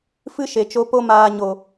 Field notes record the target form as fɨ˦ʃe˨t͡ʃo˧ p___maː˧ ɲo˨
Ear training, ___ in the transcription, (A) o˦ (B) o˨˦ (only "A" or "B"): A